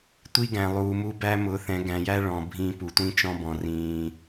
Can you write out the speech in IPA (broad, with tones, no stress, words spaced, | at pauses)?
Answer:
tʷi˦ɡæ̃˨lˠuː˨mu˦ bæ˦mʊ˨˦θɛ̃˨˦ ɡæ̃˨jæ˦ ɭɔ̃˨ bʱĩ˦ pu˨ tʷĩ˦t͡ʃɔ̃˦bɔ̃˨ rĩː˨